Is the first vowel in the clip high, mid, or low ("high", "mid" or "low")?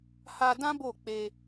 low